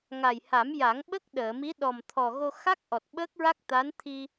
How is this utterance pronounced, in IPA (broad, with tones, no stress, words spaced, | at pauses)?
ŋa˨˩jha˨˩˦m ja˨˩˦ŋɓə˦˥k̚ ɗəː˨˩˨mi˧˥ ɗɔ˨˩mt̪ʰɔ˨˩ ɣo˧xa˦˥k̚ ʔɔ˨˩t̚ɓəː˦˥k̚ɹa˦˥k̚t̪a˧˥n t̪ʰi˧